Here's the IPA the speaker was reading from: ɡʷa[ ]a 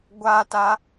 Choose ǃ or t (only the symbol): t